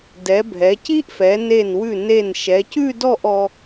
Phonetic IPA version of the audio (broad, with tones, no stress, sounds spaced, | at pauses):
d ɛ˩˧ bʱ ɛ˩˧ c i˥ ʔ f ɛ˩˧ n e˧˩ n w ʉ˧˩ n e˧˩ n ʃ ɛ˩˧ c ʉ˥˧ d ɔ˥˧ ʔ ɔ˧